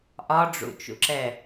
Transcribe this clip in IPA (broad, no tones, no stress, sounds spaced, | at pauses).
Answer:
ʔ ɒ ɖ͡ʐ ṵ t͡ʃ ṵ ǁ ɛ